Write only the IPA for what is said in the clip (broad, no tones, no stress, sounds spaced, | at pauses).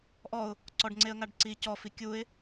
ʔ ɔ ʊ̯ | ǀ ɔ ɖ ŋ͡ǀ e ə̯ ŋ a ɖ ǀ i c ɔ f i kʲ u ɪ̯